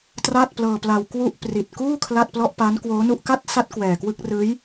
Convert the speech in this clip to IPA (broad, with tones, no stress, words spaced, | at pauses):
tra˥˩t̚plɤː˧pla˧w kwu˥˩ʔ pri˨˩t̚kuː˥˩ kʰla˥˩t̚plɔ˥˩ʔpa˦˥n kwoː˦˥nu˥˩ʔ ka˥˩t̚sa˦˥t̚ kwɛː˨˩kwɯ˥˩k̚ rɯː˦˥j